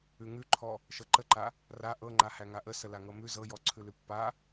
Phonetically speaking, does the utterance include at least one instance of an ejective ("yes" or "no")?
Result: no